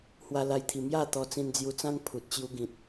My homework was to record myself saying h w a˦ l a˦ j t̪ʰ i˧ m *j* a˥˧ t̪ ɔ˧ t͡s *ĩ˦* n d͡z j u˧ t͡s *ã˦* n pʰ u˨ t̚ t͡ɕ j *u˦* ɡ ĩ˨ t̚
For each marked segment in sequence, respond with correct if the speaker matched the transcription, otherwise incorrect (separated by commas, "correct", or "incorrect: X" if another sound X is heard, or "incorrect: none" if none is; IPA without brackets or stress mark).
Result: correct, incorrect: ĩ˧, correct, correct